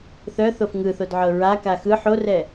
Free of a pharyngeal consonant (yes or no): no